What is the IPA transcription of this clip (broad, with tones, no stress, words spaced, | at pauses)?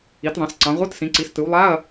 i˩˧tðˤɑ̃˩˧s ǀɑ̃˩˧ʁʷɯ˧˥˧tsĩ˩˧ǀi˩˧s tɯ˩˧wlˠa˧˥˧ɐ̯